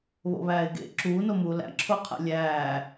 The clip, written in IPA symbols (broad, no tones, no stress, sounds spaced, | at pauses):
β o̰ β æː ɪ̯ ɡ ḛ ǁ uː n o m uː l æ̰ ǁʰ o qʰ æ̰ lʲ æː